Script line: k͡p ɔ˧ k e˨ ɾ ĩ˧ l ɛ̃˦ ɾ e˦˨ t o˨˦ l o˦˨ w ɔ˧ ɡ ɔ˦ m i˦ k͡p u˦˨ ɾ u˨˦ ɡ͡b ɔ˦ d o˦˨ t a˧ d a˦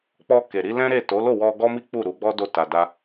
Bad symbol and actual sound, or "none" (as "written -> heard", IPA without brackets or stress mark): ĩ˧ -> i˧